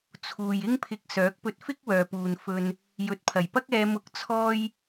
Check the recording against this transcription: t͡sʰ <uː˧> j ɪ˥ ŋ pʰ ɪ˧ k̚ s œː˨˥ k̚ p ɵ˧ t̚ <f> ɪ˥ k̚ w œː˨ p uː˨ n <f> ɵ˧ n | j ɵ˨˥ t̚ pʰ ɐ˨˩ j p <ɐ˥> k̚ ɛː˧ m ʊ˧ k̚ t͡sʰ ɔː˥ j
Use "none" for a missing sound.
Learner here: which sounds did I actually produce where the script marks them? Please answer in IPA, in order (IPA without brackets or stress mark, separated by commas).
uː˨, f, f, ɐ˥